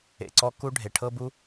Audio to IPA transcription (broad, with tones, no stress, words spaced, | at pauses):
ḛ˨ǀɔ˧ ku˦ ɖʱe˨ʈʰɤ˦bu˦